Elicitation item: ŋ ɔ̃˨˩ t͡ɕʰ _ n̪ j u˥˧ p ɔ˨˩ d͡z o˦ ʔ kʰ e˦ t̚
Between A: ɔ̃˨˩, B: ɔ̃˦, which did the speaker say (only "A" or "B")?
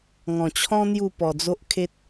B